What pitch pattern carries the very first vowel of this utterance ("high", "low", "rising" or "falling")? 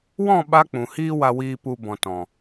falling